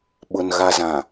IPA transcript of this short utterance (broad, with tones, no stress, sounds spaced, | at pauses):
ɓ ʊ˨ n ɣ a˨ z ã˨